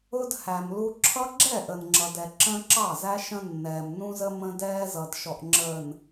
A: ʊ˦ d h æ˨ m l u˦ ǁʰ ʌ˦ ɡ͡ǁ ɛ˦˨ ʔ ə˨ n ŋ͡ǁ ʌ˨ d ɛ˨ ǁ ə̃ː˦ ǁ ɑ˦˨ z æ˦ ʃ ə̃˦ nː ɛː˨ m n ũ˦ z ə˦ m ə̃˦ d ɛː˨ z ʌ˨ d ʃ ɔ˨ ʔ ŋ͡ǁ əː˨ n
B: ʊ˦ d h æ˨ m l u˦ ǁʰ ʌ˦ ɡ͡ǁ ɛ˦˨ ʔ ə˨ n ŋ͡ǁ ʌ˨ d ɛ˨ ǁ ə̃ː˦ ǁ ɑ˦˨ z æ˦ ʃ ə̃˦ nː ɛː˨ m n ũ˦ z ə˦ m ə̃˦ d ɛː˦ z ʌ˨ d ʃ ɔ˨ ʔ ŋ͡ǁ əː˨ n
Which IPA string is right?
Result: B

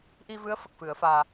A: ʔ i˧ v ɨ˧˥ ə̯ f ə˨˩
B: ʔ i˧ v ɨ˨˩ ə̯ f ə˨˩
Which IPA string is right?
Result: A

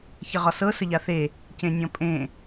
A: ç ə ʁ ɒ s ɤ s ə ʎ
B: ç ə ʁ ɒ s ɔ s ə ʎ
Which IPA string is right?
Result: A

